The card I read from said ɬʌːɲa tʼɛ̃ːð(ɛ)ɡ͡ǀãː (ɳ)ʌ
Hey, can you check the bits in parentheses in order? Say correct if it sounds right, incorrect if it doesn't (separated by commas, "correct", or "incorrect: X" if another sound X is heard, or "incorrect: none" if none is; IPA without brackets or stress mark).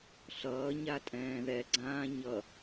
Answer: correct, incorrect: ɲ